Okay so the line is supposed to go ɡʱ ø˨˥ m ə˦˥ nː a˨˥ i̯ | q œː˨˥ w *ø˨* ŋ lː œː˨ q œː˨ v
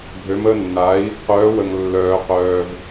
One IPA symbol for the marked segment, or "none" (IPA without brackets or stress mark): ə˨